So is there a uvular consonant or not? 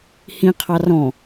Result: yes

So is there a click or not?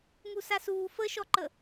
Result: yes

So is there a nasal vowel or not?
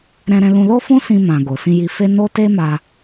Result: yes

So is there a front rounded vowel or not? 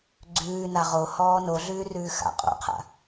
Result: no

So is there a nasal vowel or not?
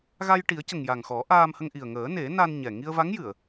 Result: no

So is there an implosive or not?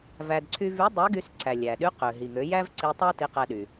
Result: yes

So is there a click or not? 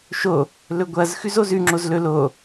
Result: yes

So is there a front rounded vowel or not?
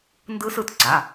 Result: no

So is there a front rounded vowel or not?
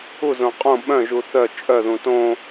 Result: yes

